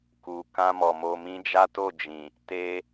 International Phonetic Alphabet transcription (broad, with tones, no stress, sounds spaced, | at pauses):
k u˨ k ã˧ m ɔ˨ m o˨ m ĩ˧ d͡ʒ a˦ t o˦˨ d͡ʒ ĩ˨ | t e˧